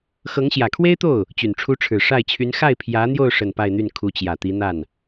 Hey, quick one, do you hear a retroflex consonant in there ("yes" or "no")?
yes